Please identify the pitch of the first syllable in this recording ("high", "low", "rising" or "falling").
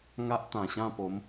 high